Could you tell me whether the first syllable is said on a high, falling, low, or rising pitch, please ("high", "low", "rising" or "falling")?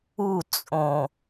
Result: falling